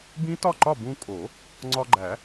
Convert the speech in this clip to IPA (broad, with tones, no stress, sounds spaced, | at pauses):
b ĩ˦˥ t ɒ˥˨ ǃ ɒ˥˨ b ũ˧ kʼ o˨˩˦ | ŋ͡ǀ ɒ˧ ɡ͡ǃ æ˨˩˦